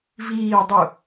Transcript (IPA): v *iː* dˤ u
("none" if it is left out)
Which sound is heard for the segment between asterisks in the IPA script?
iː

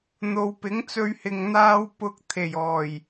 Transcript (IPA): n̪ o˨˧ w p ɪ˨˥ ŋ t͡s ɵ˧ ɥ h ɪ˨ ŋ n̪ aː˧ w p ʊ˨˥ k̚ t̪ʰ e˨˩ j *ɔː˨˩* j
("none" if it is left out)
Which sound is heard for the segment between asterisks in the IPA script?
ɔː˨˩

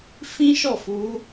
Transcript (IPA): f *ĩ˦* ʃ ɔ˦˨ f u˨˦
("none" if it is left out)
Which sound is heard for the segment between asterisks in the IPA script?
ĩ˦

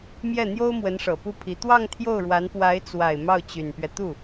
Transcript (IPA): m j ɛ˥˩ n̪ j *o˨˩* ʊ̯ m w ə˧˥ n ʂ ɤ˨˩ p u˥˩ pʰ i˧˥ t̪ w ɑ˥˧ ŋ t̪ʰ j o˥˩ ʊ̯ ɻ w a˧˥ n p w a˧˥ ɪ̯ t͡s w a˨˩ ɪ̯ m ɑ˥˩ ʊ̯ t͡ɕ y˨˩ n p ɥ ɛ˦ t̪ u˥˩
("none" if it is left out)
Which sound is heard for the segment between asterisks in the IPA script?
o˥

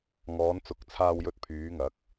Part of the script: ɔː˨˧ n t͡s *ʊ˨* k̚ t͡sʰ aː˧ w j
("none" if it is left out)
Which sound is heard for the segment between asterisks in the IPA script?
ʊ˨˥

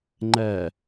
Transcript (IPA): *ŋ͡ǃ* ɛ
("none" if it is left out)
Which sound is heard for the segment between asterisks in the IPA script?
ŋ͡ǃ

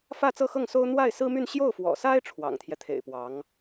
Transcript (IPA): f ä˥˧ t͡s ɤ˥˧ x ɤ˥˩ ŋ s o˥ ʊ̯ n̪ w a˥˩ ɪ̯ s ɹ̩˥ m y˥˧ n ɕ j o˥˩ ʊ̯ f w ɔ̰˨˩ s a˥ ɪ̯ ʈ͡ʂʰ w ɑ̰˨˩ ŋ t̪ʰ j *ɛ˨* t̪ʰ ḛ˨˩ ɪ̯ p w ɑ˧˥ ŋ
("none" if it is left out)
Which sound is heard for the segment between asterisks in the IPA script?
ɛ˦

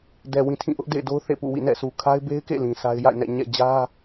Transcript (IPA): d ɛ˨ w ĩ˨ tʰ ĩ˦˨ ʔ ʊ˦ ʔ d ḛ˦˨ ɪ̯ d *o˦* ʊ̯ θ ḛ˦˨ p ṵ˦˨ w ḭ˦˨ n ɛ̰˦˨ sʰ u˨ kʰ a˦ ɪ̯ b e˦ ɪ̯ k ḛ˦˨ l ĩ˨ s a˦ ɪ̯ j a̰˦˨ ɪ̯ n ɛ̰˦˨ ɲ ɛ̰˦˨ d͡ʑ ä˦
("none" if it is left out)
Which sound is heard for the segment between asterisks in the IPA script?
o˦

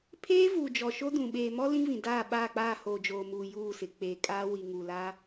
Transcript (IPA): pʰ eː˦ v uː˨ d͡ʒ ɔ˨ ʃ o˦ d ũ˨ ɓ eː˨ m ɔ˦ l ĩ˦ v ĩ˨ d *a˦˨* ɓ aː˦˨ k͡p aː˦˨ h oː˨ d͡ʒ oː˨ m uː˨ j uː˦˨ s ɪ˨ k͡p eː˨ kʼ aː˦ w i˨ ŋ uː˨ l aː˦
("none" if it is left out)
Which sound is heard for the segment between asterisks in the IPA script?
aː˦˨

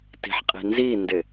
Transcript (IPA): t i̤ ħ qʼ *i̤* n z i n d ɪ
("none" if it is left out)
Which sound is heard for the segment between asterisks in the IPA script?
i̤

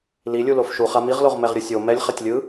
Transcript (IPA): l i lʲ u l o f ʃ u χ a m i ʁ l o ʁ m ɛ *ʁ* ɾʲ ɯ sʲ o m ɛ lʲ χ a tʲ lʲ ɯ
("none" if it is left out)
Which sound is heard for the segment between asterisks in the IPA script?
ʁ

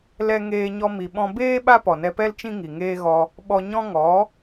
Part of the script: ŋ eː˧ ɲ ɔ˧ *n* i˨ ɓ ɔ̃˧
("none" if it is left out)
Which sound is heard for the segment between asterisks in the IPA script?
m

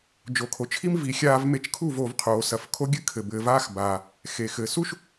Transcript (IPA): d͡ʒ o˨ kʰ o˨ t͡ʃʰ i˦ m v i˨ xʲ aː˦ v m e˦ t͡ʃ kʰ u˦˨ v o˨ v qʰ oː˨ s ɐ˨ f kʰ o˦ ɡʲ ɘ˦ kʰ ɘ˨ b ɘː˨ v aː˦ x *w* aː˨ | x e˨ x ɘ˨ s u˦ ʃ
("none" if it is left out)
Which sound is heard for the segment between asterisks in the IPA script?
b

